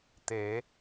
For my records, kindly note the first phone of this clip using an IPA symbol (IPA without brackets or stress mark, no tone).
t̪